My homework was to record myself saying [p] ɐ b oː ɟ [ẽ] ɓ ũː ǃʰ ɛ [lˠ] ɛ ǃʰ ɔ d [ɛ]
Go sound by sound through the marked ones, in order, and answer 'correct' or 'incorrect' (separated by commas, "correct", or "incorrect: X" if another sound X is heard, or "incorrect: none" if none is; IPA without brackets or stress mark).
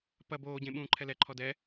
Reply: correct, correct, incorrect: l, correct